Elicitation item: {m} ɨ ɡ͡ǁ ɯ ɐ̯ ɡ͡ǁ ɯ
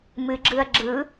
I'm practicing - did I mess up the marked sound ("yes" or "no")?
no